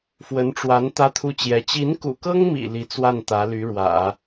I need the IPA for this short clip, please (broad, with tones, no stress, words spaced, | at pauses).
fwə˧˥nʈ͡ʂwa˧˥n t̪ä˥t̪ʰu˥t͡ɕjɛ˧˥ t͡ɕi˧˥nkṵ˨˩kɤ˥ŋmḭ˨˩ li˧˥t͡swa˥˩n t̪ä˧˥ly˧˥ɻwä̰˨˩˦